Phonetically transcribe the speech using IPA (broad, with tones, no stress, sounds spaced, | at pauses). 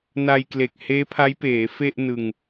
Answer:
n a˧ j k l e˨˩ k̚ h eː˦˥ pʰ a˦˥ j p eː˩˦ f e˥˩ ʔ n ɯ˧ ŋ